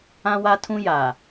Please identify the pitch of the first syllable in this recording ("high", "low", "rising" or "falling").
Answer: high